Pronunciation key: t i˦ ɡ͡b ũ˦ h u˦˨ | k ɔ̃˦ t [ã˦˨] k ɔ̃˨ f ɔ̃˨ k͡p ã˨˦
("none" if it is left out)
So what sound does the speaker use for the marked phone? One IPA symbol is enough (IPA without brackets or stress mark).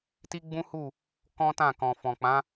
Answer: ã˦˨